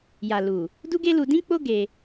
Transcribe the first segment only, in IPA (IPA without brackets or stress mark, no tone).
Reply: j